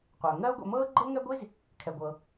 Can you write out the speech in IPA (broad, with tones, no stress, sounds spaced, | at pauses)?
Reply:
qʷ œː˩ ŋ ɜː˥ ʊ̯ ɡʷ ɛ̰˧ m ɤː˥ ɡ͡ǃ ɤ˥ ŋ ɛ˥ ɡʷ i˥ z | kʰ ɛ˩ ɡʷ ɤ˩